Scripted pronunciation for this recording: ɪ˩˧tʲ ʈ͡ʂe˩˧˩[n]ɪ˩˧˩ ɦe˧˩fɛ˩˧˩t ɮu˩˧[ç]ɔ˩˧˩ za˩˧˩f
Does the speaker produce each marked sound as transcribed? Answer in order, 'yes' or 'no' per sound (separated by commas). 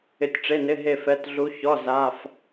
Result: yes, yes